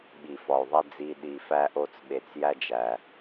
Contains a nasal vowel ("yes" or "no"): no